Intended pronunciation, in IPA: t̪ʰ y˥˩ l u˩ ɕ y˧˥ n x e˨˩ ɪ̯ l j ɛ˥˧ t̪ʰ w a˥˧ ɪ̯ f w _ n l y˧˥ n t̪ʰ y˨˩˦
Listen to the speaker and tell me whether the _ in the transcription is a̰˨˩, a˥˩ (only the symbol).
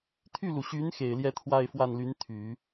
a˥˩